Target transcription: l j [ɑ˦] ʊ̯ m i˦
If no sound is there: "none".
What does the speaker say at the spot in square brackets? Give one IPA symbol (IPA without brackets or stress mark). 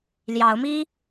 ɑ˨˦